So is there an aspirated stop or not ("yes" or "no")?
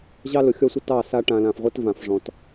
no